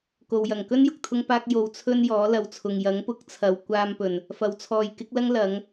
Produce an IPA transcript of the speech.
k o˨ w j ɐ˨˩ ŋ k ɵ˥ n j ʊ˨ k̚ t̪ʰ ʊ˥ ŋ p aː˥ k̚ j o˧ w t͡sʰ ɵ˥ n j ɔː˨˥ l ɐ˨ w t͡sʰ ʊ˨ ŋ j ɐ˨˥ ŋ p ʊ˨˥ k̚ t͡sʰ ɐ˨ w kʷ aː˧ m p ɵ˨˩ n | f ɐ˨ w t͡sʰ ɔː˨ j k ɪ˨˥ k̚ l ɐ˥ ŋ l ɐ˨˥ ŋ

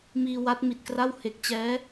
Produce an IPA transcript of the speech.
m iː˧ w a˦˥ t̚ m i˨˩ t̚ k r a˥˩ w h e˨˩ k̚ t͡ɕ ɛː˦˥

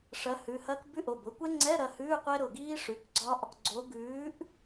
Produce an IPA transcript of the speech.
ʂ ɐ˨˥ h ʉ˩˧˩ h ɐ˦˥ k b ʉ˧˥˧ ʔ o˩˧˩ b ʊ˨˥ kʷ ɛ˦˥ ŋ͡ǀ ɛ˧˥˧ ɾ ɐ˩˧˩ h ʉː˧˥˧ qʷ ɛ˦˥ ɾ ʊ˩˧˩ ɡ iː˦˥ ʂ ʉ˩˧˩ k ɡ͡ǀ ɒ˦˥ ʔ | ɡ͡ǀ o˨˥ ɡ ʉː˨˥ ʔ

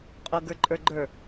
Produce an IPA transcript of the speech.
qʼ o ɡ ə˞ ǃʼ ə˞ ɡ͡ǃ ə˞

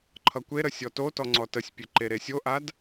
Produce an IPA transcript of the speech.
ǃʰ ʌ kʷ e ɾ ə sʲ ɔ t o t ɔ ŋ͡ǀ ɔ t ə sʲ pʲ e ǃ e ɾ e sʲ o ʔ a d

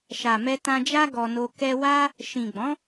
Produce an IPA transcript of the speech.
ʃ a˨ m ɛ˧ t ã˧ d͡ʒ a˦ ɡ ɔ˧ n o˧ k ɛ˧ w a˦ | ʃ ĩ˨ ɡ͡b ɔ̃˨˦

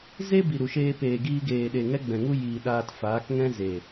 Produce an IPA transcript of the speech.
z e˦ b i˨ ɾ u˨ ʃ eː˧ p eː˨ ɡ iː˧ ɡ eː˨ ɗ e˨ ŋ ɛ˦ ɡ͡b ɛ̃˨ ŋ u˦ j iː˨ ɗ aː˧ t f aː˨˦ k ŋ ɛ̃˦ z e˨

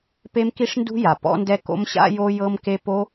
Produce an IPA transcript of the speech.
p e˦˥ m k i˦˥ ʂ n d ṳ˦˥ j a˩ p ɔ̰˦˥ n d ɛ˦˥ k o̰˦˥ m ɕ a̰˦˥ j o˦˥ j ɤ˦˥ m k e˦˥ p o˦˥

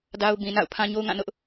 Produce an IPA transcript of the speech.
d a˦ ʊ̯ b ĩ˨ n a̰˦˨ ʊ̯ pʰ ã˦ ɲ o˦ ʊ̯ ŋ ã˦˨ n ʊ˦ ʔ

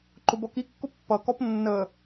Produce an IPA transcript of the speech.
ǃ ʊ b ɔ k i kː ʊ pː ʌ k ɔ p nː ə

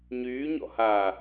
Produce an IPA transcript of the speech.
ɲ yː ɲ ɔ̰ h aː

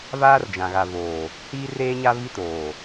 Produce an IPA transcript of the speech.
v aː˦ r d͡ʒ ã˨ ɣ a˨ v oː˨ | h iː˦ r eː˦ ɲ a˦ v i˦ t oː˨

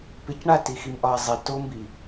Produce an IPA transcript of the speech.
p ɪ c ɳ a t i x i m ʔ ɒ i̯ zˤ i t o m b i

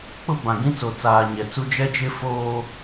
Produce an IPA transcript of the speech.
k͡p ʊ˦ b ã˨ ɡ ĩ˦ t͡s o˨ t͡s aː˨ ɲ ɛ˨ t͡s u˦ d͡ʒ ɛ˦ d͡ʒ ɪ˦ f oː˦

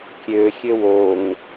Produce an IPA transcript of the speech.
kʲ ø xʲ ø w o ŋ

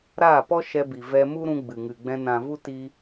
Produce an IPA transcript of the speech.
ɾ aː˦˨ p ɔ˦ ʃ ɛ˧ b i˨ v ɛ˧ m u˦ ɾ ũ˧ ɡ͡b ɨ˨ ŋ ɨ˨ ɡ͡b ɛ̃˧ n ã˨ v u˦ t i˧

